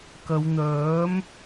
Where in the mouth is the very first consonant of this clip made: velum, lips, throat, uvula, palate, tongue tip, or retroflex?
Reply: velum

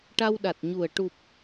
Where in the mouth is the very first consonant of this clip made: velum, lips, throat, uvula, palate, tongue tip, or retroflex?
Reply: retroflex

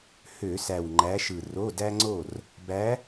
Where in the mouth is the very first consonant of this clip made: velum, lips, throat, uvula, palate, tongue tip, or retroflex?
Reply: throat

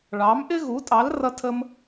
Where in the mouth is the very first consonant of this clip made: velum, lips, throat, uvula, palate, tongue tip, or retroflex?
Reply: retroflex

